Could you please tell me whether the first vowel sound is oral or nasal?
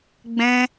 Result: nasal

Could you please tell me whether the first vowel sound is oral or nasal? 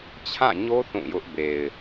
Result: nasal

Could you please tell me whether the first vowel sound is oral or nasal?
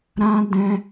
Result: nasal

